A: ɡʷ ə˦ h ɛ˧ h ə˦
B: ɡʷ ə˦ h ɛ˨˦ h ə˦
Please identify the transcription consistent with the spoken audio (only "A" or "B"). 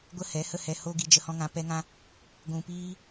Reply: B